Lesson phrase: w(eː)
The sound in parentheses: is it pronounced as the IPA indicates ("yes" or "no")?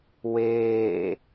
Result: yes